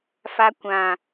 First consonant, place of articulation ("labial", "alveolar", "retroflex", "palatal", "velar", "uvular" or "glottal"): labial